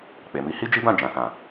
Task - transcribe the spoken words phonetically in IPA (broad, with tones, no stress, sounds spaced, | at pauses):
k͡p e˨ m i˨˦ h i˦ d͡ʒ i˦ b ã˦˨ d͡ʒ ã˨ s ã˨